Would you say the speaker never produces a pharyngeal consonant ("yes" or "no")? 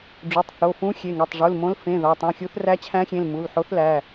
no